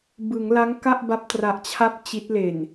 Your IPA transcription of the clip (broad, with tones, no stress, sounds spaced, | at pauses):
b ɯ˩˦ ŋ l a˦˥ ŋ k a˥˩ ʔ b a˦˥ p̚ t r a˨˩ ʔ t͡ɕʰ a˦˥ p̚ t͡ɕ i˦˥ t̚ l e˨˩ n